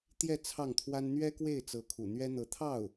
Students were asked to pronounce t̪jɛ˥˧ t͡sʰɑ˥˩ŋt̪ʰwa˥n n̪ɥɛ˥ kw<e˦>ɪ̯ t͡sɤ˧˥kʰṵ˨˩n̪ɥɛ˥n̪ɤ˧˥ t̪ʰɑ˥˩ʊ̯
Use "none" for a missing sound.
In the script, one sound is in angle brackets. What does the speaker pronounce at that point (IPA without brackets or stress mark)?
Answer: e˥˩